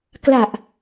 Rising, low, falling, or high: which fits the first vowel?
low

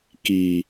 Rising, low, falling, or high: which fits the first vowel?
low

